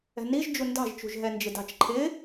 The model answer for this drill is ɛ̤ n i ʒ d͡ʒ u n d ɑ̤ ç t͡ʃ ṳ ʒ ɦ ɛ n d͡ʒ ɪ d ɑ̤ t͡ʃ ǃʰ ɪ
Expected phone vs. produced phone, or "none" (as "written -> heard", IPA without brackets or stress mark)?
ç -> ʒ